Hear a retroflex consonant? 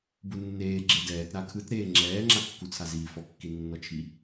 no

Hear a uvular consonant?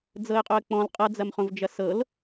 yes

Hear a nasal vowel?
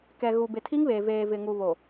no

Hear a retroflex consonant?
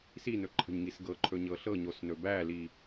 no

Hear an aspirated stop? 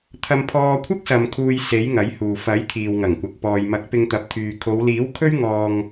yes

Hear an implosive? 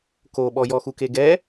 yes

